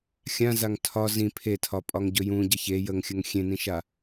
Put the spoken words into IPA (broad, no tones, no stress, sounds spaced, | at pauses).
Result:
xʲ ã z a ŋ tʰ ɒ z ĩ pʰ e tʰ ɒ pʼ ɒ ŋ ɟ ɵ j ũ ɟ ə ç e j ə ŋ xʲ ə ŋ xʲ ẽ n ĩ ʃ a